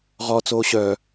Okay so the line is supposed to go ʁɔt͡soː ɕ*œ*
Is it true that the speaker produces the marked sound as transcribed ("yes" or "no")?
yes